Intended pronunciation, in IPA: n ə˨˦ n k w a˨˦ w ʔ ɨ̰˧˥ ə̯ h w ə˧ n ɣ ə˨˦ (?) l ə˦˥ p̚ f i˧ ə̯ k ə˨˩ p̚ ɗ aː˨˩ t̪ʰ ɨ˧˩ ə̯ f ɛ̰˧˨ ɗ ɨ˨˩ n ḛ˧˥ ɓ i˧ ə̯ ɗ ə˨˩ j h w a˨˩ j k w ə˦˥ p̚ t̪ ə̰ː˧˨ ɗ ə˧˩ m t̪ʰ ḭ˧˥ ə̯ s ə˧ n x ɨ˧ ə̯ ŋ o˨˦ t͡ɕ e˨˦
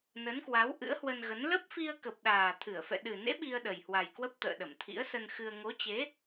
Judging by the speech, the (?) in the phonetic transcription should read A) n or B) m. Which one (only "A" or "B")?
A